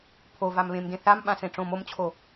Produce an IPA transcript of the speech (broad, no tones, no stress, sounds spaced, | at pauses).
pʰ o v a m β ẽ m d ẽ θ a m ɓ ã s ẽ ʈ͡ʂ õ m o m t͡ɕʰ o